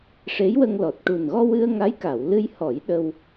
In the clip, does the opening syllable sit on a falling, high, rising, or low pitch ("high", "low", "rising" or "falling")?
rising